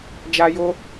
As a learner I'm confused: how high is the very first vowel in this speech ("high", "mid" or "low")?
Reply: low